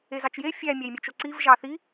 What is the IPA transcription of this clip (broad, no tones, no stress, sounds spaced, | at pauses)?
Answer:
e z ɑ t͡ʃ j e fʲ æ mʲ æ j mʲ ø t͡ʃ o ǀ i v ʒ ɑ θ i